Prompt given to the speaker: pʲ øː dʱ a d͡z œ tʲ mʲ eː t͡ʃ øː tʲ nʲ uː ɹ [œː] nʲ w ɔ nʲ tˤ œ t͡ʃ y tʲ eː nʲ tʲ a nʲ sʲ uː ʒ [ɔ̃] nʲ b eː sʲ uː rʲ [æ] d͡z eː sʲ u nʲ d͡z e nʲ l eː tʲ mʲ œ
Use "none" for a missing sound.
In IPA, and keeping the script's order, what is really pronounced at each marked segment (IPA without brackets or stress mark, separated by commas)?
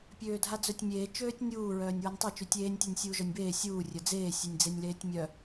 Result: œː, ɔ, œ